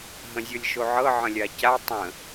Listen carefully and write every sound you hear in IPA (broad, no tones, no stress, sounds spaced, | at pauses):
ɦ ə̃ zʲ ɤ lʲ ʃ o ʕ ɤ ʕ ə̃ lʲ a c a tˤ ə̃